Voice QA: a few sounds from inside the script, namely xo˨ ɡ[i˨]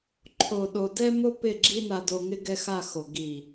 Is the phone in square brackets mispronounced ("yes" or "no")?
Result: no